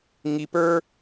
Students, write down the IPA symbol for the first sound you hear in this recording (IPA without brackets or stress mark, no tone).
ŋ